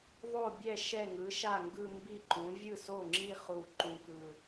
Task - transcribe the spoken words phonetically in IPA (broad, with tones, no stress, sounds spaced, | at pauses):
ðˤ o˥˩ bʲ ɛ˥˩ ʃ ɛ˥˩ ŋ ɯ˩˥ ʃ a˥˩ ŋ ɡ ɯ˥˧ m b i˥˩ ǃ ũ˩˥ vʲ ɯ˥˩ s o˥˩ ŋ͡ǁ i˥˧ χ u˥˩ ǃ ũ˥˧ k ɯ˥˧